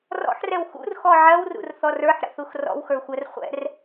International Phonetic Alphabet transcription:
r ɔ̰ ħ r ɛ w x ṵ r x ɔ ʕ ɜ w r ṵ r θ ɔ r ə˞ ħ ɾ ə̰ θ u x r ɔ̰ w x ə˞ xʷ ɜ r χʷ ɛ̰ r

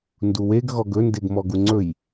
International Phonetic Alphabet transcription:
n d u w e ɡ ɣ ɔ ɡ ɵ n d e ɡ m ɔ ɡ u ŋ͡ǀ ɵ j

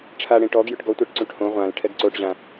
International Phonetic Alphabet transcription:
ʈ͡ʂʰ a ɽ ẽ ʈ ɔ ɡ j ʏ ʈ ɡ ɔ tʷ a ʈ ǀ ũ ʈ h õ ʁʷ ã l ʈʰ ɛ ɡ ǀ o ʈ ʑ ã

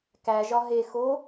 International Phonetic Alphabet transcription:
k æ ʒ ɒ ɦ e x o

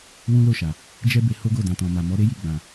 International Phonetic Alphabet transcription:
w ũ˦ l o˦˨ ʃ a˨ | d͡ʒ ɛ˦ b e˧ h o˦ ɡ o˦˨ d ã˨ t ɔ̃˨ m a˨ m ɔ˨˦ ɾ e˦ j i˦˨ ɡ͡b ã˨

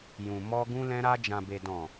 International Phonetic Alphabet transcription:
j ũ˨ m ɔ˧ ɡ ũ˧ l ɛ̃˧ ɾ a˧ d͡ʒ ã˨ b e˨ d ɔ̃˨

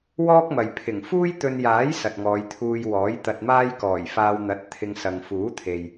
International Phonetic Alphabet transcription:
w ɔː˥ k̚ m ɐ˨ j pʰ ɪ˨˩ ŋ f uː˥ j t̪ ɵ˧ n j aː˨˥ j s ɐ˨ t̚ ŋ ɔː˨˧ j t̪ʰ uː˧ j w ɔː˨˥ j t̪ ɐ˧ t̚ m aː˥ j k ɔː˨˩ j f aː˧ w n̪ ɐ˨˥ t̚ t̪ʰ ɪ˧ ŋ s ɐ˨ ŋ f uː˨˥ t̪ʰ e˨ j

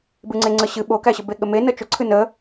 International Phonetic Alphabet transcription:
b ɨ ŋ͡ǀ e ŋ͡ǀ ə ɕ ɨ ɓ o k æ ɕ ə b e ɠ ə m e n ə t͡ʃ ʊ ǀʰ ɨ n ə

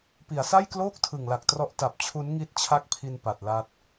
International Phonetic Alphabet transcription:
p i˩˦ a̯ s a˥˩ j k l oː˥˩ k̚ tʰ ɯ˨˩ ŋ l a˨˩ k̚ t r ɔ˦˥ ʔ t a˨˩ p̚ t͡ɕʰ u˦˥ n ŋ i˦˥ t̚ t͡ɕʰ a˥˩ k̚ pʰ i˧ n p a˨˩ t̚ l a˦˥ t̚

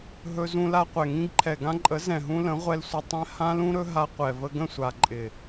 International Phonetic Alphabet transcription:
ɦ ɵ˧ z ũ˧ l a˧ qʷ ɛ˨ ŋ ĩ˧ ɡ ǃʰ ɛ˨ ɡ ã˧ ǃʼ ə˨˦ z ɛ̃˨ ɦ ũ˧ l ə̃˨˦ ʁʷ ɛ˧ l sʷ ɪ˨ tˤ ɛ̃˧ h ã˦ l ũ˦ ɾ ɵ˦ ɦ a˧ qʷ ɛ˨ v ə˧ ɡ ə̃˦˨ sʷ a˨ ǃʼ ɪ˨

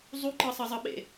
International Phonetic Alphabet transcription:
zˤ u ǃ ɤ sˤ ɤ zˤ ɤ ɓ ḛ

